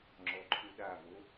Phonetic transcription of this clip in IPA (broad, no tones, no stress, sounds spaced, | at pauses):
ŋ͡ǁ ɔ ǃʰ u ɗ a v o